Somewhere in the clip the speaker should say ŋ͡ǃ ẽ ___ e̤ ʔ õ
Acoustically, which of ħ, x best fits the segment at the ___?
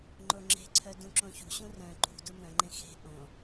x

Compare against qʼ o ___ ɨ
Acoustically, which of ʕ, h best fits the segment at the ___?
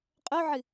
ʕ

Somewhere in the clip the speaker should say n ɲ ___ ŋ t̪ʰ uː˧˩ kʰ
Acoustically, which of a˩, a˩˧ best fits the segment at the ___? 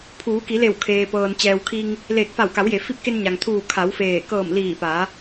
a˩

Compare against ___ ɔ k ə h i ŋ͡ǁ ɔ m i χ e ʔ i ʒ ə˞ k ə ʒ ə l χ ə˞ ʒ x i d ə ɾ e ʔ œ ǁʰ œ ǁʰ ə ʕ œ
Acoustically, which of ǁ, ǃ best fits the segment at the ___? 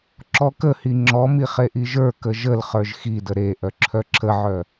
ǁ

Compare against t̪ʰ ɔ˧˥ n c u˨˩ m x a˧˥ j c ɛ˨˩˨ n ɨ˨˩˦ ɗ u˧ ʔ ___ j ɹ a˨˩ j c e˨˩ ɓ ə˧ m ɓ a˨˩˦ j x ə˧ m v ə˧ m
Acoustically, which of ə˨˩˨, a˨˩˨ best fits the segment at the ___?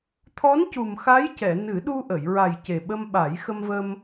ə˨˩˨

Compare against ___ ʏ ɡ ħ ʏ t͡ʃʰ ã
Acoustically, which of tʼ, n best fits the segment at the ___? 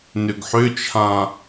n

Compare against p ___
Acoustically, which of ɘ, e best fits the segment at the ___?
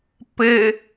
ɘ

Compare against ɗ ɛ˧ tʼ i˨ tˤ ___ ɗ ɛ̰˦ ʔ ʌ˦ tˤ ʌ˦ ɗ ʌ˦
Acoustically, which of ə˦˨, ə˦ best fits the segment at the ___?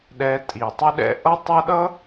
ə˦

